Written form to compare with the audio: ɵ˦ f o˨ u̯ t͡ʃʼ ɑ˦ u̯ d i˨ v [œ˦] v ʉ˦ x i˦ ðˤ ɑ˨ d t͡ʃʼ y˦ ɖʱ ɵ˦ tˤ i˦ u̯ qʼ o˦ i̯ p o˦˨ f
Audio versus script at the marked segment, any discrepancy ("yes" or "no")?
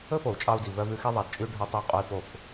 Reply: no